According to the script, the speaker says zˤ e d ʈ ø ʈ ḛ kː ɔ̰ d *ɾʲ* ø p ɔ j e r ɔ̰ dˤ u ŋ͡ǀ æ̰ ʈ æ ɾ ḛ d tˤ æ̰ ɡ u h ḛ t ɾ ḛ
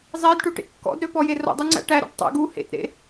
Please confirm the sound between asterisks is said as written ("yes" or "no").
no